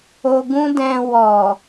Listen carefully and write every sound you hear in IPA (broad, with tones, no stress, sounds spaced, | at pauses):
o˧ ɡ ũ˦ d ɛ̃˧ w ɔ˨